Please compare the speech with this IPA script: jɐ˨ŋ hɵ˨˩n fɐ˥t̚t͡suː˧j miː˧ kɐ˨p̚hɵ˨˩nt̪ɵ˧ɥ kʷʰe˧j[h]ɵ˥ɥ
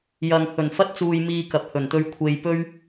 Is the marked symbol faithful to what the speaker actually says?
no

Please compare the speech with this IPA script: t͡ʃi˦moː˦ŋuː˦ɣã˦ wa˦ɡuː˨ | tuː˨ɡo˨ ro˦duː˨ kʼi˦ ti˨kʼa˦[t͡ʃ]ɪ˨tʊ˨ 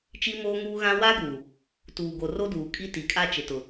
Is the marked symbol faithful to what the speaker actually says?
yes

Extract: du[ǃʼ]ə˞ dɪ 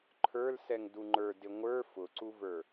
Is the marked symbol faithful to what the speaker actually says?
no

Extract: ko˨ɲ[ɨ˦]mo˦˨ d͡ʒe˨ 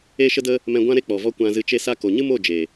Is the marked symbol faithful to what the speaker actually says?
yes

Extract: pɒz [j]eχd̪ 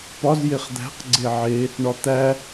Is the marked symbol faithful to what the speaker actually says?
yes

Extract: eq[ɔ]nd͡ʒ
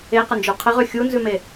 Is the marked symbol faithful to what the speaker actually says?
no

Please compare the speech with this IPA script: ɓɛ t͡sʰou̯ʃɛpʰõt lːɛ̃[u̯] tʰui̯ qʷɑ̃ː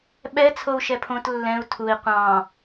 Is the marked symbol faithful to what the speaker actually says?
yes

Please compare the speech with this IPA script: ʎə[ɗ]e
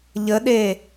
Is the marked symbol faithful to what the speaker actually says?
yes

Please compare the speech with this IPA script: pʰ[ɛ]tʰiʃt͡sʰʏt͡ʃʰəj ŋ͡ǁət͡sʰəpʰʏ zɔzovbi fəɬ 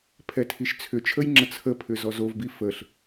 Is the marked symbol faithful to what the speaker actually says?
yes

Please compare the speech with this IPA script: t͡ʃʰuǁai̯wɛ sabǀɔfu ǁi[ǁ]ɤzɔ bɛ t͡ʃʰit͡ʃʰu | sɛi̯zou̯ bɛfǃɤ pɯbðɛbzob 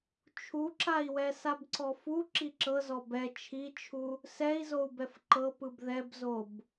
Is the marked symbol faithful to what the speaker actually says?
yes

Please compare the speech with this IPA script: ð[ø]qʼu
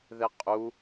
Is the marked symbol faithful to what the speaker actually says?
no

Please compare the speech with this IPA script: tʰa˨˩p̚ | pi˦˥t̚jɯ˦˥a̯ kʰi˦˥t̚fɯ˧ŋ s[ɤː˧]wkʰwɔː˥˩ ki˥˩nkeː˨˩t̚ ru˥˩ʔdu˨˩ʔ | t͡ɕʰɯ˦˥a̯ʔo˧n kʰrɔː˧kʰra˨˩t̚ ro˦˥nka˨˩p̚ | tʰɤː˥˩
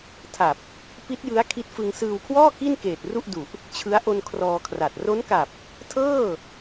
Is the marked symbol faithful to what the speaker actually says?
no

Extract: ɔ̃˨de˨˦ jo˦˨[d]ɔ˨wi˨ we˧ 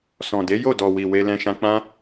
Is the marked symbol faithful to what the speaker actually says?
yes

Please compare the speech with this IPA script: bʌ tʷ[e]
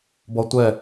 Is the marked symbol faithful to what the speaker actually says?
no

